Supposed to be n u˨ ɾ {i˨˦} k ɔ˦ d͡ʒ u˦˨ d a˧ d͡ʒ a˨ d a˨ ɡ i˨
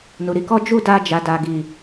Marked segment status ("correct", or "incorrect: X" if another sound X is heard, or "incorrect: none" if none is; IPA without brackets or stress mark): correct